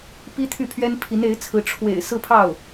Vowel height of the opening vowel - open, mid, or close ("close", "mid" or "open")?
close